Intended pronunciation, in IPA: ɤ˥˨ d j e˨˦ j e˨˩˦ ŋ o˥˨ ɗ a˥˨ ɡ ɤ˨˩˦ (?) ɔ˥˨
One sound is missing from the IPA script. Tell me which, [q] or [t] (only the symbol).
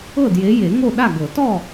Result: t